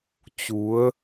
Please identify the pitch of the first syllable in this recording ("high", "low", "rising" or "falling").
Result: rising